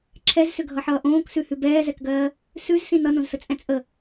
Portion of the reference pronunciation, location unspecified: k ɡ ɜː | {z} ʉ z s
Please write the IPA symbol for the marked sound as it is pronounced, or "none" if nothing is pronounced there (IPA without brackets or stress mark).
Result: s